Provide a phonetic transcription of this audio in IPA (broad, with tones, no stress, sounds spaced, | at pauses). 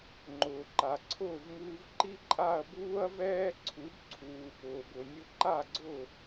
ŋ͡ǃ ʊː˩ ǃ a˩ ǀʰ ʊː˥˩ v ŋ uː˧ v ǃ i˥ ǃʼ a˥˩ ɐ̯ b uː˥ ɐ̯ v ɛː˥ ǀʰ u˩˥ b ǀʰ uː˩ p ʊː˩ b ʊ˩ nʲ ʊ˧ ǃ a˥˩ ɡ͡ǀ ʊ˥˩